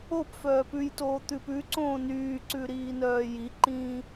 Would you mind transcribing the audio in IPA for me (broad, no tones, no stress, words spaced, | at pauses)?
opfœː pʉjtoː t̪ʉpʉǀõː nyːǀʉ ɾiːnœːjiǃĩː